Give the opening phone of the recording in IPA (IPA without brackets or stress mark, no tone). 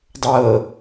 dˤ